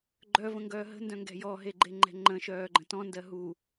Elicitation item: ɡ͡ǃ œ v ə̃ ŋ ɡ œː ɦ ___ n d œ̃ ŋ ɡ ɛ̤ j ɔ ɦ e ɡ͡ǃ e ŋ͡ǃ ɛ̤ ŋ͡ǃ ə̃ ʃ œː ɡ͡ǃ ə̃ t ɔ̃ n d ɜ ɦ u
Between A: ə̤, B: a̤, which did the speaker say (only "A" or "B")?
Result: A